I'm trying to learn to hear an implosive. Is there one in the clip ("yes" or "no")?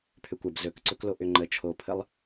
no